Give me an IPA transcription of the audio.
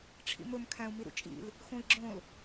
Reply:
ʈ͡ʂʰ ḭ m ɵ m kʰ æ̃ u̯ m i ɾ ṵ t͡ʃʼ ḭ l | x õ i̯ ɡ͡ǁ õ l

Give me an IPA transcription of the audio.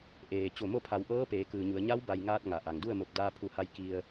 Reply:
ʔ eː˩ t͡ɕ o˧˩ m o˥˨ pʰ a˩˧ w ʔ ɤː˧˥ p eː˩˧ k ɯː˩ ɲ u˩˧ ə̯ ɲ a˧˥ w b a˩ j ŋ aː˧ t̚ ŋ a˩ ʔ a˩ ŋ d u˥˨ ə̯ m o˧˩ p̚ d aː˧ pʰ u˧˩ h a˧ j k i˧ ə̯

